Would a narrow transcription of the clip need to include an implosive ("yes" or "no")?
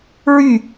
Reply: no